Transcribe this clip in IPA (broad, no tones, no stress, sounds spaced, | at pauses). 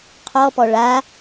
qʰ ɔ p ɔ ɭ a